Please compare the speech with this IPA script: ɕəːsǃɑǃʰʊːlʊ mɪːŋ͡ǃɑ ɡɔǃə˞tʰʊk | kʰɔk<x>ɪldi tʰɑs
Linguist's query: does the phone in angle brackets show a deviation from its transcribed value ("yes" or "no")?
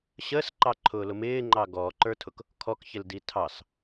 yes